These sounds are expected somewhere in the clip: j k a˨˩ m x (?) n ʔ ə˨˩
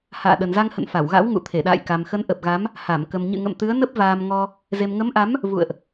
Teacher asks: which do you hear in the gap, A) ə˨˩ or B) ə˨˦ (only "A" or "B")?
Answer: B